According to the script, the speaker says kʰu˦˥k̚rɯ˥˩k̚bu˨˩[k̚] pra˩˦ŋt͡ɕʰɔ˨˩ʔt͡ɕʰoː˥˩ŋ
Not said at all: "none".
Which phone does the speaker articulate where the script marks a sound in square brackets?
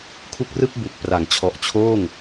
k̚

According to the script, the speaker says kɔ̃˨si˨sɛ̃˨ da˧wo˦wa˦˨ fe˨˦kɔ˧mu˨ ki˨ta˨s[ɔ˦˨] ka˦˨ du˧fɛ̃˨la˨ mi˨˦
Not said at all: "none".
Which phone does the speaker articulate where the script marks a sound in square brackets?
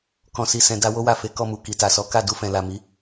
ɔ˨˦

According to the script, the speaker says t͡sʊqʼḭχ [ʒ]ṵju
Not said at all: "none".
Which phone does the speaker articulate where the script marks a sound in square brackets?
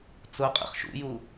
ʃ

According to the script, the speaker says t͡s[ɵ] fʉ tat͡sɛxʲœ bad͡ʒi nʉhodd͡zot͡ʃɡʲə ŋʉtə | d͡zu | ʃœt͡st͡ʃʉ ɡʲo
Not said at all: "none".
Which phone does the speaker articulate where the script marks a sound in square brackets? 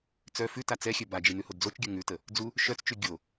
œ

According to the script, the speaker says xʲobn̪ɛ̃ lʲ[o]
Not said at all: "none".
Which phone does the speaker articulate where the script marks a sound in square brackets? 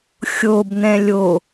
o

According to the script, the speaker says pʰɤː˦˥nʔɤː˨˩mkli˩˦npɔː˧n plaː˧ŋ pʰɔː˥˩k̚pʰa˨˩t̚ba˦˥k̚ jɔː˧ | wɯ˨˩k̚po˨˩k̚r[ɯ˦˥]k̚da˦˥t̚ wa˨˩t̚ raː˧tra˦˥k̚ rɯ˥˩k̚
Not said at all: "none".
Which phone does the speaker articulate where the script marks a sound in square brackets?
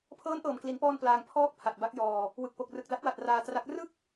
ɯ˨˩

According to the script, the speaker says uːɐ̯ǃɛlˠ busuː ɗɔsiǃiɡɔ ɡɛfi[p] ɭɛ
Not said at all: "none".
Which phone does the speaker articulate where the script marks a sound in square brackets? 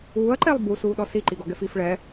f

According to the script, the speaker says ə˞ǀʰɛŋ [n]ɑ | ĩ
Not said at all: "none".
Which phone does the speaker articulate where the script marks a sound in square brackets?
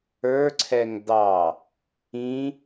d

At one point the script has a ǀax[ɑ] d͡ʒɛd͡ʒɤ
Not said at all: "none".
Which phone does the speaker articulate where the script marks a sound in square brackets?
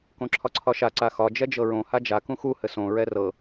ɒ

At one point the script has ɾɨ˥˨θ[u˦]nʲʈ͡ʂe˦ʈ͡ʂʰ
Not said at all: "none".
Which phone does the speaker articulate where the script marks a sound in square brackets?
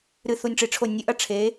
u˦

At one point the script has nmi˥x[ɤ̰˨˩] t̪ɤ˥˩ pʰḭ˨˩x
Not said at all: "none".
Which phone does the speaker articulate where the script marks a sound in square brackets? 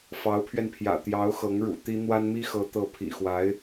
ɤ˧˥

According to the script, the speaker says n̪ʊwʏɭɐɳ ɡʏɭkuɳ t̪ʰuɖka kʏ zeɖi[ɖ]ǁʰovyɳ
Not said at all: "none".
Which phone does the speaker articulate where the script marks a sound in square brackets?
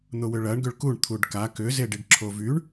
ɖ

